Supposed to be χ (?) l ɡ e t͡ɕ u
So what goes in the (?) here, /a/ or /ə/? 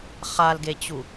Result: a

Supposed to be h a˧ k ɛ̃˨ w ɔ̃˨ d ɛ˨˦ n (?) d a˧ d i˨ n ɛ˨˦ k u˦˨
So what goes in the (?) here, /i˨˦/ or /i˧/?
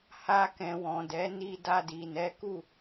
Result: i˧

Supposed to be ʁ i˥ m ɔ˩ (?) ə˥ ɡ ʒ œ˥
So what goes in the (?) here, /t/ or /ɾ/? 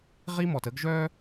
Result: t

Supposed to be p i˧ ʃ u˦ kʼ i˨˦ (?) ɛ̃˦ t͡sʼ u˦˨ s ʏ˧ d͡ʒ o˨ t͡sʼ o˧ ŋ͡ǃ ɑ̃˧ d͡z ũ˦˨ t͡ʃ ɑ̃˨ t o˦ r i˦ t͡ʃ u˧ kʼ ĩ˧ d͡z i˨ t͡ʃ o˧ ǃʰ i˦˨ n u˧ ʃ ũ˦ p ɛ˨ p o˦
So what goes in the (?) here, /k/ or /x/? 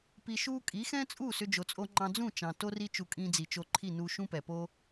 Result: x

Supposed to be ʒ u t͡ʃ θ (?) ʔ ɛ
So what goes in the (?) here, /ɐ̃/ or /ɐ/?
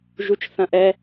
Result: ɐ̃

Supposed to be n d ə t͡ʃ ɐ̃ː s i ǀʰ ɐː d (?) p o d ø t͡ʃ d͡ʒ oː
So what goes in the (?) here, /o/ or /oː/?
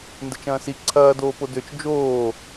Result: oː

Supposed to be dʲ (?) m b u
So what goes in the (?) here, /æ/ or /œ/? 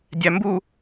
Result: æ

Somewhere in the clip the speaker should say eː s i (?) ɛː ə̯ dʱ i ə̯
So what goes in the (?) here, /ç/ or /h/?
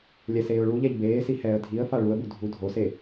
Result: h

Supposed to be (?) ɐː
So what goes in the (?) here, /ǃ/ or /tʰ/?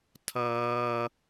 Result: tʰ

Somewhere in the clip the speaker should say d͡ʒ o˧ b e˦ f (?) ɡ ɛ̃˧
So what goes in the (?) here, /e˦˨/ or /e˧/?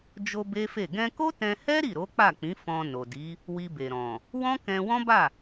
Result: e˦˨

